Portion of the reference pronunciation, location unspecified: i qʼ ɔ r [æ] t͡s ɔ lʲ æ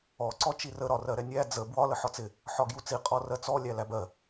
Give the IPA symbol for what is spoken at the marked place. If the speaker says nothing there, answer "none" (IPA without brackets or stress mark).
ɜ